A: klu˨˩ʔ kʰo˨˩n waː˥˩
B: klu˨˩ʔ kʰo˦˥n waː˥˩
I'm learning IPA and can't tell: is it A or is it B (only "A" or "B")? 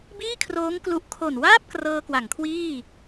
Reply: A